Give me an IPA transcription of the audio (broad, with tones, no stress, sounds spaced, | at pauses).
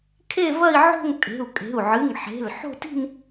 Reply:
kʰ e˥˧ v ɐ˥˧ i̯ ʕ o̤˥˧ ŋ tʼ e̤˩˧˩ u̯ kʼ e̤˩˧˩ u̯ ʕ ɨ˩˧˩ ŋ ħ e̤˩˧˩ l ħ o̤˥˧ t i̤˥˧ n